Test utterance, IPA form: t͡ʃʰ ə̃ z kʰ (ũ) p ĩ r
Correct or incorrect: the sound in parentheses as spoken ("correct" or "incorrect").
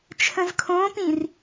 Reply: incorrect